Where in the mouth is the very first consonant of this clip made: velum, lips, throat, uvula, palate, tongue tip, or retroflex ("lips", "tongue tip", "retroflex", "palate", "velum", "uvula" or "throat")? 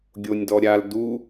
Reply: velum